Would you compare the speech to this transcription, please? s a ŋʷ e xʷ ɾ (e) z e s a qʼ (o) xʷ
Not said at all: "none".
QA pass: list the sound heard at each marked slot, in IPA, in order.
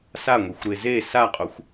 e, o

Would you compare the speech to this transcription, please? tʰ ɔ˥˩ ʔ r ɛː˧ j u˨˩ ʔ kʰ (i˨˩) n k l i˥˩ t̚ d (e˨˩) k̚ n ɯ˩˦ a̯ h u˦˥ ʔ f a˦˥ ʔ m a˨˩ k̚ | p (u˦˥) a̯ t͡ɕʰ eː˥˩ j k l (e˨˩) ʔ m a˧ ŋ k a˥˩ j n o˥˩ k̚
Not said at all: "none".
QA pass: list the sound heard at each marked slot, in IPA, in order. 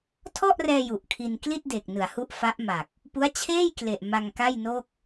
i˧, e˨˩, u˦˥, e˨˩

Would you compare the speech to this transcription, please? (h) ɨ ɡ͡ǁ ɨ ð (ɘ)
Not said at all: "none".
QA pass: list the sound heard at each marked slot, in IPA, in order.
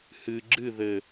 h, ɘ

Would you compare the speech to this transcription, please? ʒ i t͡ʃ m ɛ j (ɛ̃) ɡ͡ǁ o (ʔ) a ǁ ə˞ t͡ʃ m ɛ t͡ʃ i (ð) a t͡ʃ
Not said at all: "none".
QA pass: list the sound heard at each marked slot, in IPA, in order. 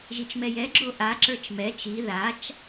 ɛ, ʔ, ð

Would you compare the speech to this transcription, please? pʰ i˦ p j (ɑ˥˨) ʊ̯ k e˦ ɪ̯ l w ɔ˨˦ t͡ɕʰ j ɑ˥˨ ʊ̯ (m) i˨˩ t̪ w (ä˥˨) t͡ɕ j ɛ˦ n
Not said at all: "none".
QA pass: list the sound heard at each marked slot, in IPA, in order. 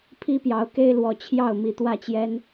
ɑ˨˦, m, ä˥˨

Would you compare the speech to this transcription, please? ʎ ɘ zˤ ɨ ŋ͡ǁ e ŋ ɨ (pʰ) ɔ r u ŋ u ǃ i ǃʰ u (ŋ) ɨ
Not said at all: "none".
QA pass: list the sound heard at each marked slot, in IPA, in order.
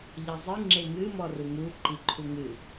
m, ŋ

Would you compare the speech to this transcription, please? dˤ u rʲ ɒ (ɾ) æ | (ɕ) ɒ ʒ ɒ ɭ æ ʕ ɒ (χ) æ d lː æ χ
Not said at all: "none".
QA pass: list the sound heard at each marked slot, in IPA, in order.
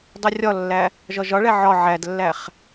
lː, ʒ, ʕ

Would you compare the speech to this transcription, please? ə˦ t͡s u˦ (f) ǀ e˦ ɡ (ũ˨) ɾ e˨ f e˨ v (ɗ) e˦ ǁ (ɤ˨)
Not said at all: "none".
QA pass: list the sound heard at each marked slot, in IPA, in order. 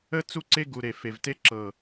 none, u˨, t, ɤ˨

